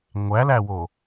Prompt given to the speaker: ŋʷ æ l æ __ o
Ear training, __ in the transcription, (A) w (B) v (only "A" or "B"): A